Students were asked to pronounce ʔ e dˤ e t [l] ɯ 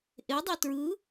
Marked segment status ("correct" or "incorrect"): incorrect